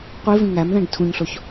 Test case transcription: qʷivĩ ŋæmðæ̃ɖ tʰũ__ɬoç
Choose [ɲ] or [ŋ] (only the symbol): ɲ